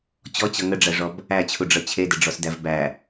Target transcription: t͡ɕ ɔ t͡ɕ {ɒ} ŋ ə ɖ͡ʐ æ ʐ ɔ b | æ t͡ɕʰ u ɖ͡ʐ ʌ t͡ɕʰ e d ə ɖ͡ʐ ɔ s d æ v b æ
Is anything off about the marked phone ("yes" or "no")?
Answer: yes